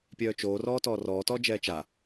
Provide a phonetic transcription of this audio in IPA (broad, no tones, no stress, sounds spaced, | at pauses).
pʲ œː t͡ʃ oː r ɔː t ɔː r ɔː t ɔː d͡ʒ ɛː t͡ʃ a